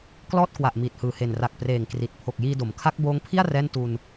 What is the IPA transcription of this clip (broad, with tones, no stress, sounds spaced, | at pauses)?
k l ɔː˥˩ t̚ k w a˨˩ ʔ m iː˨˩ t̚ h ɯː˨˩ h e˨˩ n r a˨˩ k̚ p r eː˨˩ ŋ k r i˨˩ t̚ pʰ o˨˩ k̚ j iː˧ d o˩˦ m kʰ a˦˥ k̚ b oː˦˥ ŋ pʰ i˥˩ a̯ r ɛː˥˩ n t u˧ n